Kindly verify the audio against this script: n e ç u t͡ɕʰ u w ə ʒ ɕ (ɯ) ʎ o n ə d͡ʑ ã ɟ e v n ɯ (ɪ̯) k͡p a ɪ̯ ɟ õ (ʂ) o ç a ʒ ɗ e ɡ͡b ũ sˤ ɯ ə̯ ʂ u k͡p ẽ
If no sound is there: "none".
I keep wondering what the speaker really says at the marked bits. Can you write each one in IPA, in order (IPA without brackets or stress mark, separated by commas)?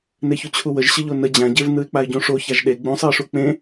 ə, ɪ̯, ʂ